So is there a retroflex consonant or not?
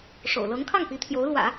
yes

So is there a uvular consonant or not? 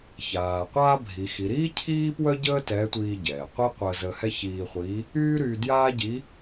yes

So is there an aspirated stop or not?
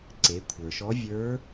yes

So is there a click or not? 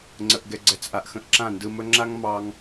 yes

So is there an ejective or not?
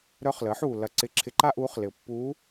no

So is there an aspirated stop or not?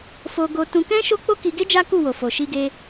no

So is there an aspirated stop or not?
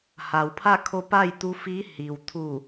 yes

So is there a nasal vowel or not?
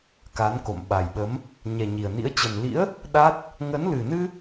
no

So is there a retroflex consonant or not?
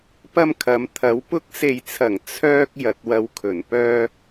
no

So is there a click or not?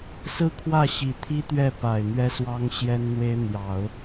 no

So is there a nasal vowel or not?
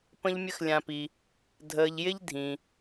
yes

